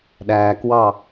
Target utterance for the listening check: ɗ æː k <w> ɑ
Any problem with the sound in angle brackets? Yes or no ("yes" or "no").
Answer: no